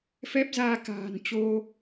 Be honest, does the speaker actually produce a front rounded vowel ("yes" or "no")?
no